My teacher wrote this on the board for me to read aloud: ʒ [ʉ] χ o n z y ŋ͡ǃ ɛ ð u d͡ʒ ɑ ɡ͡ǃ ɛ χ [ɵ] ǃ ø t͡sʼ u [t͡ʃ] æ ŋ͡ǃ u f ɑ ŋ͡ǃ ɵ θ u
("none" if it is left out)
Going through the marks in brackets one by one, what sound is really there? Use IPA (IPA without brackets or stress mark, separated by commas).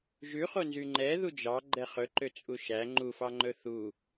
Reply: ʉ, ɵ, ʃ